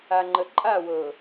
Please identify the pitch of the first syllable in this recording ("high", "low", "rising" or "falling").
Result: low